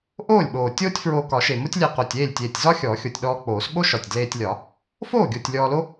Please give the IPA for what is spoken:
ʔoː˥˩lʲɓoː˨˩ tʲoː˥tʲfɹoː˧ kɒ˨˩˦ʃe˨˩mo˥tʲlʲe˧ qo˨˩tʲeː˥˩lʲtʲeː˨˩tʲ zɒ˥ xʲɔː˨˩˦xʲo˨˩tʲɗɔː˧ k͡poː˨˩˦sɓo˥ʃɒ˨˩tʲ dleː˧tʲlʲɒ˨˩˦ | foː˥˩ɡʲo˨˩tʲ lʲɔː˧lo˥

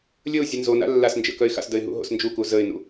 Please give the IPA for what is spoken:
lʲəʊ̯ zʲənzona̰ lːasnd͡ʒə̰ kœɪ̯xa̰sdəɪ̯ ɦṵɦo̰snd͡ʒuku zəɪ̯nṵ

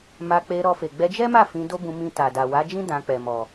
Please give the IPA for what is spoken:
ma˧k͡pe˧ ɾɔ˧fe˨ ɡ͡bɛ˧d͡ʒɛ˦ma˦˨ fĩ˧do˦bũ˧ mĩ˧ta˨da˨ wa˨˦d͡ʒĩ˦ dã˧k͡pɛ˨mɔ˨

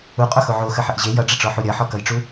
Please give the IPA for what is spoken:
uqʼoxo ʕoxəħəʔ ʑe jʌɖ͡ʐəʈ͡ʂɔħu ɾʲʌħɔkʌjʈ͡ʂu

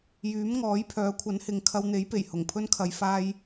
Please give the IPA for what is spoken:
jyː˨˥m ŋɔː˨˥jpʰœː˨˥kʷʰɐ˨˥n hɪ˨ŋkʰɐ˧wn̪e˨˥jpe˨˩j hʊ˨˩ŋpʰɵ˥nkʰɐ˨˧j faː˥j

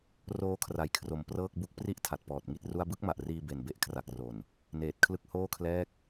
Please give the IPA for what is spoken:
roː˦˥kʰra˩˦jkʰro˩˦m prɤː˥˩k̚bu˥˩k̚ pri˦˥ʔ tʰa˨˩t̚pɔː˨˩t̚ŋi˥˩t̚ru˥˩a̯ bɯ˥˩k̚ma˨˩ʔriː˧ be˨˩nbe˦˥ʔkʰra˨˩k̚ro˨˩n | neː˨˩t̚kʰlɯ˦˥k̚ hoː˥˩kʰlɛː˥˩k̚

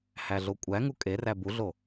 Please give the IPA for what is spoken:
hæɮokʷʼæ ŋukʼeræ buɮo

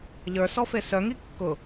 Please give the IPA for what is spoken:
ʎə˞sɔfe sœŋi kːʊ

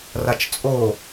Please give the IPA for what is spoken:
rat͡ʃt͡sʼo

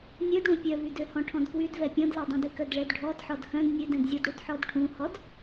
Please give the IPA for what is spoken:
nʲødɽũ pʲœvydøhɔ̃ ʈʰɔ̃dkwydvɛ pʲɔ̃dlɛdˤœ̃dy kœdɭɛdɖʱɔd ħɔdhœ̃d nʲødɛ̃dzʲɔdɽud ħɔdʈʰũhɔd

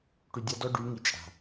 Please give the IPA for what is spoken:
ʈy˨dʲa˦dɔ˦ ɖy˨˦ ŋi˨t͡ʃʼa̤˨

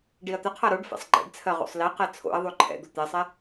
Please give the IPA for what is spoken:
ɖiɐ̯t̪əqʰa ɾoɖ fɛ̰sˤɡ͡ǃɛ̰ɖt͡sʰɜ ʁo̰sˤliqɛ t͡sʰo̰ɐ̯ðˤo ǃʰɛ̰d̪o t̪ɛsˤɛ

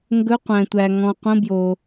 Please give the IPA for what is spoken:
ŋɡɵ˧˥˧qʷæ̃˨tʷæ˨ ŋɔ̃˨qʷə̃˧˥˧bjo˨

